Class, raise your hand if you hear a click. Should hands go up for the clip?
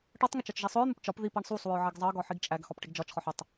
no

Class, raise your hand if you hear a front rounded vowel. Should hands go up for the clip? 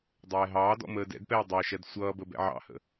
no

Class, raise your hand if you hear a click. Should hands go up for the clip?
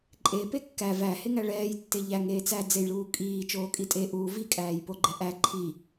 yes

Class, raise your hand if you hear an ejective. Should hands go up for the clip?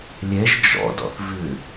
no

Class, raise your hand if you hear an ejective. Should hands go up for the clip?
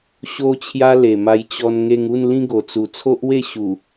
no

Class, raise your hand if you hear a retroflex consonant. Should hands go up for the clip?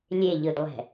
no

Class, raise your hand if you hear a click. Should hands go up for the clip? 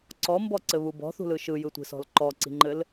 yes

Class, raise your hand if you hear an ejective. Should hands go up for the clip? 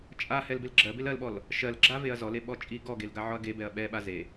yes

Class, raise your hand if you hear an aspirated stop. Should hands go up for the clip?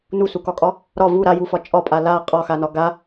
no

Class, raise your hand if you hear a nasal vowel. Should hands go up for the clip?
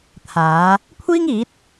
no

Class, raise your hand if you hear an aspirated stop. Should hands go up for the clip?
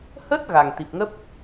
no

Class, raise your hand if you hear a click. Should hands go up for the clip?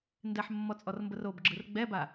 yes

